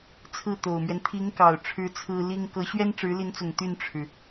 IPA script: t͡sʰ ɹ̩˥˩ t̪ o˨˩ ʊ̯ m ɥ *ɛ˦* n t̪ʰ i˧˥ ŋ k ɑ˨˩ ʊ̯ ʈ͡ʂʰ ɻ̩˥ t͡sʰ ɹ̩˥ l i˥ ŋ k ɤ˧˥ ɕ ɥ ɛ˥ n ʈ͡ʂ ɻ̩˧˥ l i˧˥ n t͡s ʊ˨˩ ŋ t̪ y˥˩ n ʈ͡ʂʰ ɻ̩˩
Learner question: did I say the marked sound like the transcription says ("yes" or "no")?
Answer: yes